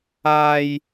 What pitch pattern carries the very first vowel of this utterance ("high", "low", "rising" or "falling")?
high